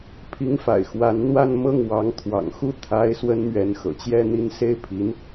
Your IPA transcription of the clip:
pʰ i˧˥ ŋ f a̰˨˩ ɪ̯ x w a˧˥ n n̪ w a˥˧ n m ɤ˥˩ ŋ w ɑ˧˥ ŋ t̪ʰ w ɑ̰˨˩ ŋ x u˥˩ t̪ʰ a˥ ɪ̯ s w ə˥ n m ɥ ɛ˧˥ n x ɤ̰˨˩ t͡ɕ j ɛ˥˧ n̪ i˥˧ n s e˥˩ ɪ̯ pʰ i˧˥ n

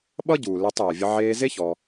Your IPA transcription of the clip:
ɓ ʌ˦ ɟ uː˨ l e˧ tˤ eː˨ vʲ ə˧ ʕ eː˧ z e˦ ç ɔ˧

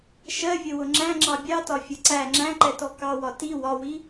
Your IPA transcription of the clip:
ʃ ɜ vʲ ə w ʊ ŋ͡ǁ æ̃ ŋ͡ǁ ɑ bʲ ɑ t ɒ fʲ ʌ ǀ æ ŋ͡ǁ æ̃ ǃ ɛ t ɔ k ɑ w ɒ t i w ɒ w i

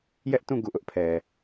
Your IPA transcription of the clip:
j ɛ˦ ʔ t ũ˦˨ ɡ u˦˨ ʔ ʊ˦ ʔ pʰ ɛ˨

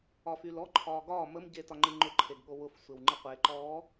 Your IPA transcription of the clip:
ɒ f y l ɔ ǃʰ ɒː ɡ ɒː m ə m ɟ e t ɒ ŋ͡ǃ ɨ ŋ͡ǃ ʊ ǃʰ e ɡ ɠ o w ʊ f sʷ e w ŋ͡ǃ ɨ qʷ e ǃ ɔː

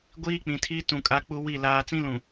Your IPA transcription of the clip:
ɡʷ iː˦ k͡p ĩ˨ tʰ iː˦ t ũ˨ kʼ a˦ k͡p u˦ w i˦˨ l aː˨ t͡s ĩ˦ l ũ˨

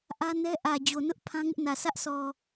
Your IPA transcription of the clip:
ʔ ä˦ n ɛ˦ ʔ ä˨ d͡ʑ o˨ n ʊ˦ ʔ pʰ ã˦ ŋ ɪ˦ ʔ n ä˨ sʰ ä˦ ʔ sʰ ɔ˨

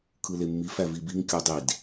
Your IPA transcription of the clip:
kʰ ɯ l e mː i f æ v i b i ŋ kʲ u dˤ i d

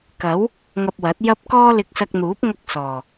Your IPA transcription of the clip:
k ɐ˨˥ w | ŋ ɐ˧ p̚ w ɐ˨˥ t̚ j ɐ˧ p̚ k ɔː˥ l ɪ˧ k̚ s ɐ˧ k̚ n̪ uː˨˥ p̚ ŋ ɐ˥ k̚ s ɔː˨˩

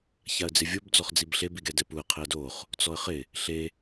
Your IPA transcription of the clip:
ç a ə̯ d͡z ɪ vʲ o b d͡z ɔ χ d͡z i b ɬ e b i ɡ ɛ d ɛ p u ə̯ qʰ ɪ ə̯ d o χ | t͡s ɔ ə̯ χ ɪ | ɬ e

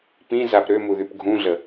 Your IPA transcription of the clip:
p ĩ z a p ɾ ø m u ð y p ɡʱ ũ ɮ ə

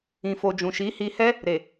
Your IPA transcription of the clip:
ĩ˨ f o˨ d͡ʒ ũ˨ ʃ i˨˦ h i˧ h ɛ˦ | ɾ e˨

